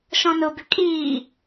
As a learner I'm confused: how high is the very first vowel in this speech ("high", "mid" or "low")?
mid